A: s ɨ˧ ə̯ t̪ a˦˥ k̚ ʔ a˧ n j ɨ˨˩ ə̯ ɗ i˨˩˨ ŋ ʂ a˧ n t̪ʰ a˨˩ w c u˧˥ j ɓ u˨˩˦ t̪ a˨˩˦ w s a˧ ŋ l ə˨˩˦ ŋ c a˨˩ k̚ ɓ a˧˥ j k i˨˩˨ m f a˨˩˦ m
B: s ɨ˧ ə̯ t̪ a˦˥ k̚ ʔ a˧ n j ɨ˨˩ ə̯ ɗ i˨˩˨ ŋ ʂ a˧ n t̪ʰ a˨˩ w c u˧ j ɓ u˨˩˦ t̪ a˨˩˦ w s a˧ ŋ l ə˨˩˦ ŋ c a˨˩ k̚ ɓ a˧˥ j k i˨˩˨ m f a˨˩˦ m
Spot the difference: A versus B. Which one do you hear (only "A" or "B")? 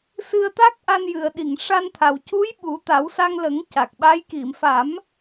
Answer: A